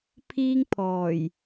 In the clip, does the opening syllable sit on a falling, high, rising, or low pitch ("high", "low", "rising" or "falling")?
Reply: high